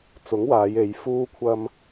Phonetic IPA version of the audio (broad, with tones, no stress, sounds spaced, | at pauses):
t͡s ʊ˨˥ ŋ w aː˨˧ j e˨˧ j f uː˧ kʷʰ ɐ˧ m